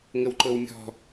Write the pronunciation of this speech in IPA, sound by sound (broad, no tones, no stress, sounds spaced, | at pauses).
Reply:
ŋ ə w ǃ ɤ w mʲ ɔ̤